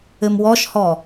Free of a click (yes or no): yes